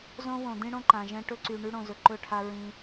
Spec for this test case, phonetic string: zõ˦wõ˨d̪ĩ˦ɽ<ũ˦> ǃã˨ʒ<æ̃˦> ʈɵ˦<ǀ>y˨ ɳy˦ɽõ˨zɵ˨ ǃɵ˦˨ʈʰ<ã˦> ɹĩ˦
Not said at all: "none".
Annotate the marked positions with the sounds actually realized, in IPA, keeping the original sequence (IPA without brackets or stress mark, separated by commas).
õ˦, ɛ̃˦, ǀ, a˦